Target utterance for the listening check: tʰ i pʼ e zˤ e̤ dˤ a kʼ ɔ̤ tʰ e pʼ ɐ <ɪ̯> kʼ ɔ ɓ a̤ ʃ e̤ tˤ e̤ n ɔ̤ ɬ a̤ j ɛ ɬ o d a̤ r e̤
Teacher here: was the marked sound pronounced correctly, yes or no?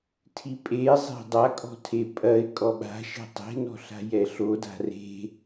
yes